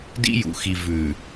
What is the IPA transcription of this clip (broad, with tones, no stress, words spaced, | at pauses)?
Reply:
dḭ˦jṵ˨ xi˨ vʉ˨